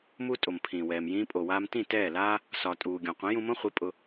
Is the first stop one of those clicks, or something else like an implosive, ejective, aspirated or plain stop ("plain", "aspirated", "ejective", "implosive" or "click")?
ejective